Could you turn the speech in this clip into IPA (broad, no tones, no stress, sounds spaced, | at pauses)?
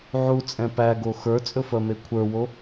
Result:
ʕ u t͡sʼ ɛ̃ p æ ɡ o x ə˞ t͡sʼ ɵ f ɜ m e kʷʰ ə˞ w o